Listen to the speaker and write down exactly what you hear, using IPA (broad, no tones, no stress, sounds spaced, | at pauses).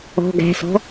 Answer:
ɔ̤ ɡ æ̤ s ɔ̤